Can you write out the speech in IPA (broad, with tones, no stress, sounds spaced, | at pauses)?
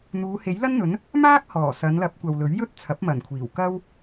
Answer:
n̪ uː˨˧ h e˨˥ j l ɐ˥ n n̪ ɵ˨˥ n | m aː˥ k̚ h ɔː˨˩ s ɐ˨˧ n l ɐ˨˥ p̚ kʷ ɐ˧ w l ɵ˨˥ ɥ j ɵ˥ t̚ t͡sʰ ɐ˨˥ p̚ m ɐ˨˩ n kʷʰ iː˨˩ w k ɐ˥ w